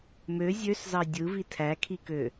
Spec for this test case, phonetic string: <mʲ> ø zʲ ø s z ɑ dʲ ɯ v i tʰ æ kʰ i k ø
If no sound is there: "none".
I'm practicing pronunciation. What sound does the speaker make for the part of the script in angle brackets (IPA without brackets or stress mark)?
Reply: m